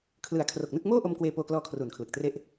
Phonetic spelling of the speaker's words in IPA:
kʰ l ɯ˨˩ a̯ kʰ r o˨˩ k̚ n ɯ˥˩ k̚ m oː˥˩ ʔ o˧ m k w eː˧ p oː˧ k l ɔː˧ kʰ r uː˨˩ n kʰ l ɯ˨˩ k̚ t r e˥˩ ʔ

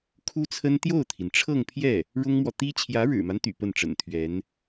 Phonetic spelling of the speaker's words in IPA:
kʰ u˥ t͡sʰ ə˥ n t̪ j o˥˩ ʊ̯ t̪ʰ i˩ n ʈ͡ʂʰ ɤ˥˧ ŋ pʰ j ɛ˥˩ | ɻ ʊ˥ ŋ m w ɔ˨ t̪ i˥ t͡ɕʰ j ä˧˥ ɻ ɻ̩˨˩ m a˦ n t̪ y̰˨˩ p ə˥˩ n ʈ͡ʂ ə̰˨˩ n t̪ʰ ɥ ɛ˧˥ n

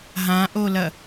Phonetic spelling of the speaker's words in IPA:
ɦ ã ʔ o l ɐ

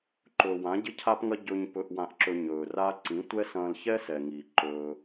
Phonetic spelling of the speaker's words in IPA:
ǃ ɵː˨ w ã˨˦ ɟ ɪ˦ cʰ a˦ p ŋ ɐ˦ ɟ ɵ˧ ɲ p ɵ˧ ʔ w ã˧ ʔ ǁ ɵ˧ ɲ ɵː˨ r a˦ ǀ ĩ˨˦ tʷ ɛ˦ s ɐ̃ː˧ l ç ɛ˦ s ɛ˨ ŋ iː˨ ǃ ɵː˦

